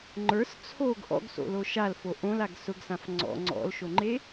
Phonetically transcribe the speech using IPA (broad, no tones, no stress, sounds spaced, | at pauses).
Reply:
ŋ͡ǃ ə˞ s t͡sʰ o ɡ ʔ ɔ̰ ɡ s o̰ l o ʃ a l f o ʔ õ l a ɡ s ʊ ɡ s ã f ŋ͡ǀ ɔ̰ ŋ͡ǀ ɔ̰ l ʃ o ŋ͡ǃ e